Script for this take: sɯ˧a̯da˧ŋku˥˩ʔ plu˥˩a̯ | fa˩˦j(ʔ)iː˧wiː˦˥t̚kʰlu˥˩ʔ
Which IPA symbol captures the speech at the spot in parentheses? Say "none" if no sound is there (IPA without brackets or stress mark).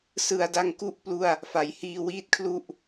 h